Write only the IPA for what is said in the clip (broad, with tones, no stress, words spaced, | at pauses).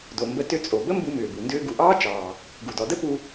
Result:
do˩mbə˧ tʏ˧t͡sʼo˩ bə˥mbu˧mʏː˩bu˩ ndʏː˧ɡu˩ʔɑː˥t͡ʃɑː˩ | ɡu˩dɔ˩də˥ pu˧